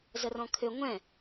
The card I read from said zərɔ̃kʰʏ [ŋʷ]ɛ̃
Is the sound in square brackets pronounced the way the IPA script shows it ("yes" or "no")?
yes